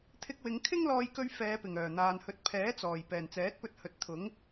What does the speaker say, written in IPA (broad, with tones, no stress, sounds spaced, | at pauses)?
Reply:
t̪ʰ ɪ˧ k̚ w ɪ˨˧ ŋ kʰ ɪ˥ ŋ l ɔː˧ j k ɵ˧ ɥ f ɛː˨˧ p ɪ˨˩ ŋ œː˨˩ n̪ aː˨ n h ɵ˨˥ t̚ pʰ ɛː˨˥ t͡s ɔː˨˩ j p ɛː˨˩ n t͡s ɛː˨˥ t̚ p ɵ˧ t̚ h ɵ˨˥ t̚ t̪ʰ ʊ˨˥ ŋ